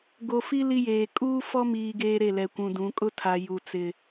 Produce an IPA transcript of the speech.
ɡ o˨ f i˦ l i˦ j eː˨ kʼ uː˦ f ɔ˦ m iː˨ ɡ eː˦ ɾ e˦˨ l ɛ˨ kʷ ũ˨ d ũ˨˦ kʼ ʊ˦ tʰ a˨ j u˨ t͡s ɪ˨

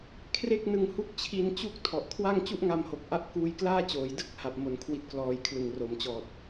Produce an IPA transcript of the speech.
kʰ r e˥˩ k̚ n ɯ˧ ŋ h u˥˩ k̚ t͡ɕʰ i˧ n t͡ɕ u˥˩ k̚ tʰ ɔ˨˩ ʔ kʰ w a˥˩ ŋ t͡ɕ u˥˩ ʔ ŋ a˧ m h o˨˩ k̚ ʔ a˦˥ ʔ k uː˧ j k l aː˥˩ t͡ɕ oː˩˦ j d ɯ˥˩ k̚ h a˨˩ p̚ m o˩˦ n kʰ w i˦˥ t̚ k l ɔː˧ j kʰ l ɯ˨˩ ŋ r o˩˦ m t͡ɕ ɔː˨˩ t̚

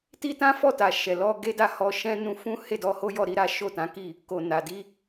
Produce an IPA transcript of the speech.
t i˦ t ã˦ f ɔ˦˨ t a˨ ʃ ɛ˨ l ɔ˧ ɡ e˦ d a˦˨ h ɔ˧ ʃ ɛ̃˦ n ũ˧ f ũ˦ h e˦˨ d ɔ˧ h o˦ j ɔ˦˨ ɾ i˧ ɾ a˦ ʃ o˦˨ t ã˨˦ k i˦˨ | k o˨ n a˨ d i˧

